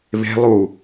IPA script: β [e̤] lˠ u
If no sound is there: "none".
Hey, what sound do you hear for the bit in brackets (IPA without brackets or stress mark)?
e̤